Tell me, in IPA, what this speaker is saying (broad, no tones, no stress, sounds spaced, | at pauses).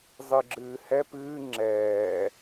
zˤ ɨ ɡ͡ǁ ɨː h ɛ p ɨː ŋ͡ǁ ɛː